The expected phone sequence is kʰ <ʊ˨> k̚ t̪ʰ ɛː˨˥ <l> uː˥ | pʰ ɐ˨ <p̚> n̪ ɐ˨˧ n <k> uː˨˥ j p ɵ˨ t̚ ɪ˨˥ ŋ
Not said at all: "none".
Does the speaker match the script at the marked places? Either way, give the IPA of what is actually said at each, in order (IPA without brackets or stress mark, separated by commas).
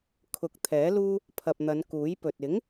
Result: ʊ˨˥, l, p̚, k